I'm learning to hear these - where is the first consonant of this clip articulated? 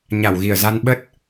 palate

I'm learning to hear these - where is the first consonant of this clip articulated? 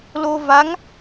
tongue tip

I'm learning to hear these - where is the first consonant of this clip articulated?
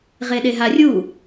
uvula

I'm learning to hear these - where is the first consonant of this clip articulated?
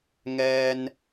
velum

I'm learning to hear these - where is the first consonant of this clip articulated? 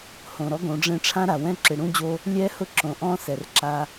throat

